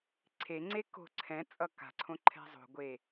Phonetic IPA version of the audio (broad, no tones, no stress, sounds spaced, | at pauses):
ǀʰ e ŋ͡ǀ e k o̤ ǀʰ ɛ̃ t͡sʼ ʌ k a̤ ǀʰ õ ǃʰ ɛ̤ zˤ o̤ ɡʷ e